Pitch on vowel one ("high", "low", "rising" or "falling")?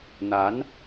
rising